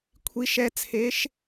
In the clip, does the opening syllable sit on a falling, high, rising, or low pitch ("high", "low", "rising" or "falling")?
rising